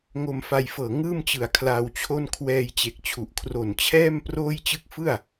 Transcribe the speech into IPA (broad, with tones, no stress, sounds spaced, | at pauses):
ŋ o˧ m f a˧ j f ɤː˨˩ ŋ ɯː˥˩ m t͡ɕ ɯ˨˩ a̯ kʰ l a˧ w t͡ɕʰ o˥˩ n kʰ w ɛː˧ j t͡ɕ e˨˩ k̚ t͡ɕʰ u˨˩ ʔ kʰ r o˨˩ n t͡ɕʰ ɛː˥˩ m p r oː˥˩ j t͡ɕ ɯ˥˩ k̚ f ɯ˥˩ a̯